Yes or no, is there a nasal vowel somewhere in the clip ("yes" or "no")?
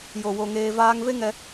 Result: no